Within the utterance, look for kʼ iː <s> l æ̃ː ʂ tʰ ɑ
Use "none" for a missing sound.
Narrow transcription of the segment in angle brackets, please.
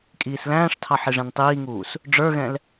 s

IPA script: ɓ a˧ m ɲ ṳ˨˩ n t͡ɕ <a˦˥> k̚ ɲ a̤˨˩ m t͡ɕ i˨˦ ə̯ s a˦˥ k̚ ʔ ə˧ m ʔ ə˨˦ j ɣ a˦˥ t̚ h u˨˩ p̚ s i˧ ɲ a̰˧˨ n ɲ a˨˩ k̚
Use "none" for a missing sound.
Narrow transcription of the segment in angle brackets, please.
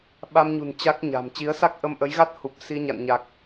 a˦˥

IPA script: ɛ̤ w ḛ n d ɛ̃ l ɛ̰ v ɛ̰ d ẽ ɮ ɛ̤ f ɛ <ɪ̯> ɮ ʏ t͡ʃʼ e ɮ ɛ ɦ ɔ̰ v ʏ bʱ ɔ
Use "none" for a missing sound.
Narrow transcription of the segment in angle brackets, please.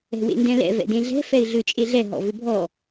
ɪ̯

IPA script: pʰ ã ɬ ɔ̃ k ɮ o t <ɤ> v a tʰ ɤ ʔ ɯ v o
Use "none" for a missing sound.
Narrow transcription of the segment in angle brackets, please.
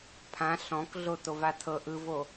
o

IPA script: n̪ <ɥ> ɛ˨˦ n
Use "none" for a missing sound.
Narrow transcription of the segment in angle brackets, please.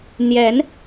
j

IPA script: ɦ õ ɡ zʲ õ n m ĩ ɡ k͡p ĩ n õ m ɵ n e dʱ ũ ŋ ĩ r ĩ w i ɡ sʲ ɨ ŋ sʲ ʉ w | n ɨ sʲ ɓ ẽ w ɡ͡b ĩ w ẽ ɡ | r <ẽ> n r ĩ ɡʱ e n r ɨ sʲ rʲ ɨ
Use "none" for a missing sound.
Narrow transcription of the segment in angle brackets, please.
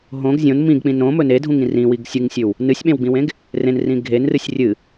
ẽ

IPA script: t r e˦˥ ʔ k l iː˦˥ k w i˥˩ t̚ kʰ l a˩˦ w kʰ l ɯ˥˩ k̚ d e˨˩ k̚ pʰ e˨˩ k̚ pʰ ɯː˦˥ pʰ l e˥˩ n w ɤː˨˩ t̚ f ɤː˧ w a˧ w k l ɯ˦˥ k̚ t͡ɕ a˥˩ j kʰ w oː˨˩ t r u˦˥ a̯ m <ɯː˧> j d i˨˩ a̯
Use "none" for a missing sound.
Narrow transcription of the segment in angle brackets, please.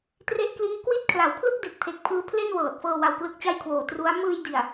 ɯː˧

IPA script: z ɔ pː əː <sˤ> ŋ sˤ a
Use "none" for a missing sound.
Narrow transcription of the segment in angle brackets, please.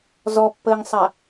none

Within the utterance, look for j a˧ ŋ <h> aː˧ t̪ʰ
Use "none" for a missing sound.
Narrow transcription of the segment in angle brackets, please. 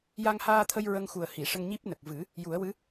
h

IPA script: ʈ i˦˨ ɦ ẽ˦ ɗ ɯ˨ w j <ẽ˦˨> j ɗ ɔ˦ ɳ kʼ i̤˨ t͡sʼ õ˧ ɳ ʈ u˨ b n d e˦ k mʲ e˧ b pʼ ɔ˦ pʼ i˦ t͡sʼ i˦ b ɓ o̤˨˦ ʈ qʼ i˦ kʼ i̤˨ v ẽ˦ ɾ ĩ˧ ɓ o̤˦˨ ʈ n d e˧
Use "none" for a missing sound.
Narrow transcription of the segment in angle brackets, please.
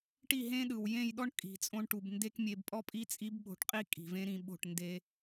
ẽ˦˨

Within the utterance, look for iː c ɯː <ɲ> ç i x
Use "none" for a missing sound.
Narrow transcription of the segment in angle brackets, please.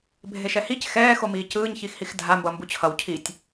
ɲ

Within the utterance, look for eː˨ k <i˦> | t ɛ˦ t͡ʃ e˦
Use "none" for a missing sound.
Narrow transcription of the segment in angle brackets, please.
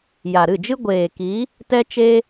i˨˦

